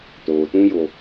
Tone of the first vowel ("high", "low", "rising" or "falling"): low